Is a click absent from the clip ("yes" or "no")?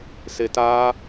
yes